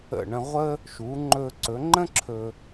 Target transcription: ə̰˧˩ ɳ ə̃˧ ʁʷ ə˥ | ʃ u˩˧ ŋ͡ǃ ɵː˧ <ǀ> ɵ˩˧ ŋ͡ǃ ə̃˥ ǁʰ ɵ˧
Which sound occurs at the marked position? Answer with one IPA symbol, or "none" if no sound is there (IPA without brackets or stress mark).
ǀ